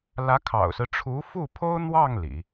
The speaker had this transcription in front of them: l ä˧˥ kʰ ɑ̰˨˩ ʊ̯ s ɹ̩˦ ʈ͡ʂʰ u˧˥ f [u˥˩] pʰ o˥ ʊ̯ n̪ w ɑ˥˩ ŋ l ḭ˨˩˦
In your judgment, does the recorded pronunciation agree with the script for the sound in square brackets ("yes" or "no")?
yes